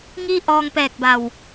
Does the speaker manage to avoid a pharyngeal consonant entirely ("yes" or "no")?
yes